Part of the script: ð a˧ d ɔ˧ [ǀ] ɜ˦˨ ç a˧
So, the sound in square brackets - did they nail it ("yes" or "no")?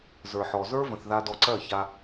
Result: yes